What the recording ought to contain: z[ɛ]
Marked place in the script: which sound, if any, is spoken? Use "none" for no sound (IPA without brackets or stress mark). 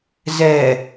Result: ɛ